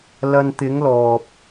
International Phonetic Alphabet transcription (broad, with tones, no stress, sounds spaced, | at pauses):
l ɐ˧ n t̪ ɪ˨˧ ŋ l ɔː˨ p̚